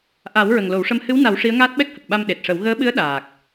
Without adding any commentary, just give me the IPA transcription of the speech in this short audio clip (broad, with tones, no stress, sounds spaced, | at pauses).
ʔ a˨˩˦ w ɹ ə˨˩ ŋ l o˨˩˦ w ʂ ə˧˥ m h ɨ˧˥ w n a˨˩˦ w ʂ i˧˥ ə̯ ŋ aː˦˥ t̚ ɓ ɛ˦˥ k̚ h ə˨˩ k̚ ɓ a˧ m ɗ e˨˩ t̚ ʂ ə˨˩˦ w ɣ əː˧˥ ɓ ɨ˧˥ ə̯ ɗ aː˨˩ k̚